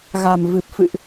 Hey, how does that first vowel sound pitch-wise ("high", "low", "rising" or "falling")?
low